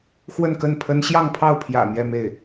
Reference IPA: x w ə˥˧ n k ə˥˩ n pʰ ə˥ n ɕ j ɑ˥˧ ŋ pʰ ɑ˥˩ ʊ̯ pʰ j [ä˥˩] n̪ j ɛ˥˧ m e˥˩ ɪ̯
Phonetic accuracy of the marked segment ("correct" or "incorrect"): incorrect